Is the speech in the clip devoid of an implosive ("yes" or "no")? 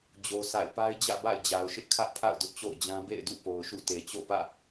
yes